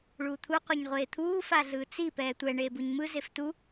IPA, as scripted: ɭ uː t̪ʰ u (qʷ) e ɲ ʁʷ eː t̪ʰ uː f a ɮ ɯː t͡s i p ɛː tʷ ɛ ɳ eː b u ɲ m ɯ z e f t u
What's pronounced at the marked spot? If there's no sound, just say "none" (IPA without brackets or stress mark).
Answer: qʷ